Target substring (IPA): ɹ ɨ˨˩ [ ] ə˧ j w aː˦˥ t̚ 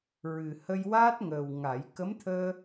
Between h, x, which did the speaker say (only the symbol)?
h